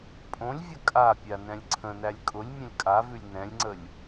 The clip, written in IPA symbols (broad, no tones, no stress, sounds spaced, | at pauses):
pʼ õ lʲ vʲ ə kʼ a pʲ a n ɛ̃ lʲ ǀʰ ə̃ n æ lʲ kʼ ʊ lʲ mʲ ə̃ lʲ kʼ a v ʉ lʲ n ɛ̃ lʲ ŋ͡ǀ ə lʲ